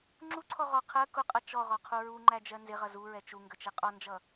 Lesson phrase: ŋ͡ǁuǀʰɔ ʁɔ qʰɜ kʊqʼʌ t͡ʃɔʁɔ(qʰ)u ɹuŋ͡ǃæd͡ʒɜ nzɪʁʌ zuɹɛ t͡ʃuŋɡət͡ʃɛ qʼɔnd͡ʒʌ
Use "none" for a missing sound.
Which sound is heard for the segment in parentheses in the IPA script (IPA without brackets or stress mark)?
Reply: qʰ